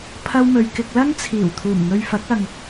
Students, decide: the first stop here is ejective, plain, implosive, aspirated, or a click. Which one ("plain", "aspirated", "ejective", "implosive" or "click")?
aspirated